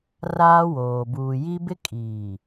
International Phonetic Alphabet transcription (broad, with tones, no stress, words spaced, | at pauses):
raː˦woː˨ buː˨ji˦ bɪ˦kʼiː˨